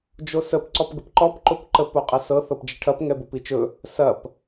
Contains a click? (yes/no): yes